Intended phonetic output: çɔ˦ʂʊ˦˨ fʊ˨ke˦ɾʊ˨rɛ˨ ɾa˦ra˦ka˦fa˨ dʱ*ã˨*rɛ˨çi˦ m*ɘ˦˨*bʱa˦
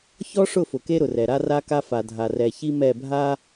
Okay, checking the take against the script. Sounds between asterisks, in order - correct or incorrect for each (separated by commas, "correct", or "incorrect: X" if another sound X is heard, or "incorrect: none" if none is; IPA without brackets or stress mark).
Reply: incorrect: a˨, incorrect: ɛ˦˨